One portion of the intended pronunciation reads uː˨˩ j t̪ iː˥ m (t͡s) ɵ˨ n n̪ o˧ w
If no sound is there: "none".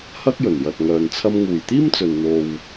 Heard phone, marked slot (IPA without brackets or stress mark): t͡s